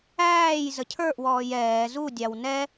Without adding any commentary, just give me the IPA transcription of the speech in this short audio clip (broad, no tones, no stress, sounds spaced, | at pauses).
æː j z ə cʰ ə˞ ʔ w ɔː j ɛː z u dʲ ɑ w n ɛ